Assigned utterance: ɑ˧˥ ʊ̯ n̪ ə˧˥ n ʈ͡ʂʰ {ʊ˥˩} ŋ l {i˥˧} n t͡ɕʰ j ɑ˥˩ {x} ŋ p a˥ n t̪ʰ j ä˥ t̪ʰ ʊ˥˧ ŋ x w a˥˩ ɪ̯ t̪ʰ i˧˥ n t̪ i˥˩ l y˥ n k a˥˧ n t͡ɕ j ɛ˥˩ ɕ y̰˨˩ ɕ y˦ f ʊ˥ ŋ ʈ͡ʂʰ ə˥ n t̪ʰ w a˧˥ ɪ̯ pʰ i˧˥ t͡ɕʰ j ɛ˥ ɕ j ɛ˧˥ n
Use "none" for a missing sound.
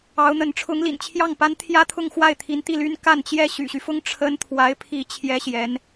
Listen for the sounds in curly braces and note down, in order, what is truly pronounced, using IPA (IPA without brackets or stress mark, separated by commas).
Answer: ʊ˧˥, ḭ˨˩, none